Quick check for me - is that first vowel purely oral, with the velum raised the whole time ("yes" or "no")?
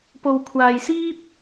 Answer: yes